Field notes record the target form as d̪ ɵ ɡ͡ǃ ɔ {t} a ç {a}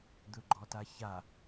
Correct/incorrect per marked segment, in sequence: correct, correct

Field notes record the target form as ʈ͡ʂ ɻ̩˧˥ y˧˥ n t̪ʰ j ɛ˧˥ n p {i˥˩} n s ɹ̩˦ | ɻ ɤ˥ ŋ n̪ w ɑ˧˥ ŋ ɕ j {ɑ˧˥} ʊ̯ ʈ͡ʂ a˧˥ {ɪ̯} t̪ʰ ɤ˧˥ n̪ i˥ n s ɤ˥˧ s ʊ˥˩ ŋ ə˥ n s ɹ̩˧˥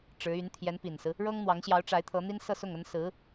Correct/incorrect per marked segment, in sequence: incorrect: i˨˩, correct, correct

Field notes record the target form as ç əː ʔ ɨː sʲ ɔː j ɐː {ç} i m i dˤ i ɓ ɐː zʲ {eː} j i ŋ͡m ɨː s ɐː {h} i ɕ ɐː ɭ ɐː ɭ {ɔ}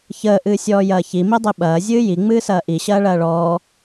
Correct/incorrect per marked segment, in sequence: correct, incorrect: ɨː, incorrect: ʔ, incorrect: ɔː

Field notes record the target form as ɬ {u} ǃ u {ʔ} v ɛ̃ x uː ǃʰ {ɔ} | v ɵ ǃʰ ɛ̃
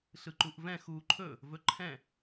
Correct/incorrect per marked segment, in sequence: incorrect: ɯ, correct, incorrect: ɵ

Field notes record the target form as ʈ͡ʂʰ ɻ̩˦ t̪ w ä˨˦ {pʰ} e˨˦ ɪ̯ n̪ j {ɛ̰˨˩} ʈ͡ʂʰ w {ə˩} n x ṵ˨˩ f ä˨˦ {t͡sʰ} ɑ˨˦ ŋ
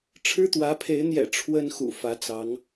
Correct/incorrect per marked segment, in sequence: correct, correct, incorrect: ə˦, incorrect: t͡s

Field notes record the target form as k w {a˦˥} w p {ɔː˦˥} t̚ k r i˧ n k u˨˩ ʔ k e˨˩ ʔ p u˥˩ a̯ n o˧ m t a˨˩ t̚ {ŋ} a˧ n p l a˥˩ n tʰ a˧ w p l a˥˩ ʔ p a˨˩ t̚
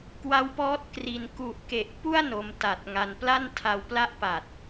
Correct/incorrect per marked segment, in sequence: correct, correct, correct

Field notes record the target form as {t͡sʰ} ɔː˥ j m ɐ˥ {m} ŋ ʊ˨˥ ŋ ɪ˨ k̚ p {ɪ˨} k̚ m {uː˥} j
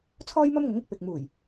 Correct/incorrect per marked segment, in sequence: correct, correct, correct, incorrect: uː˨˩

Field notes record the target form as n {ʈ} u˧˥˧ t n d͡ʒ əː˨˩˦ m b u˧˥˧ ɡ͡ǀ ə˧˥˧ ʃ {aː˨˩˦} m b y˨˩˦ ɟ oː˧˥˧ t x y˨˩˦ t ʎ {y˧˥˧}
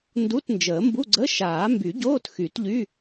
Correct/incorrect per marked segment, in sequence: incorrect: d, correct, correct

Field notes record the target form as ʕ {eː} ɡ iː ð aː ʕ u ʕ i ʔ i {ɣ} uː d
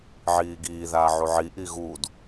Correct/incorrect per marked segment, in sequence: incorrect: iː, correct

